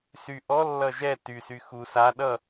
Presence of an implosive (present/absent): present